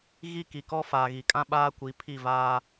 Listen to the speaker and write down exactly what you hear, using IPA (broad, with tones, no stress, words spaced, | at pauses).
ɣi˦ ki˨kɔ˦ faː˨ɣi˨kʼã˦ ɓaː˦kʷi˨˦ pʰi˦˨vaː˦